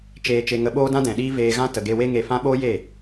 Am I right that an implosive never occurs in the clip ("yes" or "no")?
no